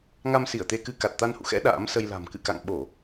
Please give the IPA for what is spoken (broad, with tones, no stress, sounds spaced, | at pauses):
ŋ a˧ m s i˧˩ ə̯ t̪ e˧ k ɨ˧ k a˨˩ t̚ t̪ a˧ n h ṵ˧˨ x ɛ̰˧˥ ɗ a̰ː˧˥ m s ə˧ j l a̤˨˩ m k ɨ̰˧˨ k a̰˧˨ ŋ ɓ o˧˩˨